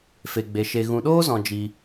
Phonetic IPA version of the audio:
f e˨ ɡ͡b e˨ ʃ e˨ ɣ ũ˨ ɗ oː˦ z ɔ̃˨ d͡ʒ i˧

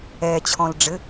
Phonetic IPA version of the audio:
ɛː t͡ɕʰ ɔ̃ l ɖ͡ʐ ɘ

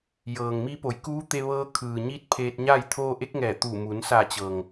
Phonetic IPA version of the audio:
j ɤː˩ ŋ m i˧˥ p o˩˧ j k uː˧˥ t̪ e˧ ʋ ɤː˧ kʰ ɯː˩ ɲ i˧ t̚ pʰ eː˧ t̚ ɲ a˥˨ j t̪ʰ oː˧ ʔ e˧˥ k̚ ŋ ɛː˧˩ t̪ uː˧˩ m u˩˧ n s a˧˩ t͡ɕ ɤː˩ ŋ

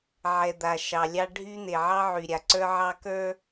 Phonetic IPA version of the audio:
ʕ ɛ˨ d̪ a˨ ʃ ɑ˨ lʲ ɑ˦ ɖʱ y˦ n̪ e˨ ʕ ɑ˦ ʕ y˨ ɾʲ a˨ ǀ ə˞˦ ʕ ɑ˦ k ə˞˦

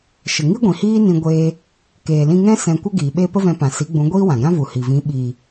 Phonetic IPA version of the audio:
ʃ ə˨ ŋ i˦ ɡʷ ĩ˨ h iː˦ n ĩ˧ ɡʷ eː˧ | k eː˨ l ĩ˧ ŋ ɛ̃˦ s ɛ̃˧ kʷ ə˦ ɡ iː˨ ɓ e˦ p ə˦ v ɛ̃˧ p ã˨ s i˨˦ ɡ͡b ũ˨˦ ɡʷ iː˦ w ã˨ ɡ ã˦ v u˨ h i˨ v ĩ˨˦ ɓ i˨

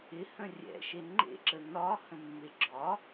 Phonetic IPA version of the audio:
ɪ h ə̃ rʲ ɛ̰ ʃ e ŋ͡ǃ ḛ ǁ ə n ɒ h ə̃ mː e ɡ͡ǁ ɒ

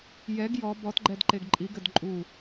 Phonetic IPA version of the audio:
j ɛ ɡ j ɔ b ɔ t ɡ͡ǃ ɛ d ǃ e ɡ ǃʼ i ɡ ɘ d ǃʼ u

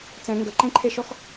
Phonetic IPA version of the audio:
t͡s ɛ̃ ŋ ɡ ə ǃ ẽ ǃʰ e ʃ ɔ x

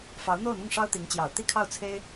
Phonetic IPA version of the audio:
f ɑ˧˥ ʊ̯ n̪ o˥˧ ʊ̯ n̪ ʊ˥˩ ŋ ʂ ɑ˥ ʊ̯ t̪ i˧˥ ŋ t͡ɕ j ɑ˨˩ ʊ̯ t̪ i˥˧ kʰ ɑ˥˩ ʊ̯ t͡sʰ e˥ ɪ̯

